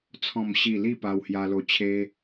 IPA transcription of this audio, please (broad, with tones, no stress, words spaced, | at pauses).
t͡sʰɔ̃˥˧mɕi˥˧ li˥˧pa˧whja˧lo˧ t͡ɕʰe˦